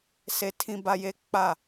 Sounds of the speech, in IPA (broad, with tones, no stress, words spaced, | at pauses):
se˨tʰĩ˨ ba˨je˨˦ k͡pa˦˨